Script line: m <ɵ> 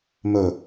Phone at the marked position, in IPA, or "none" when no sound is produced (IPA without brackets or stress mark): ɵ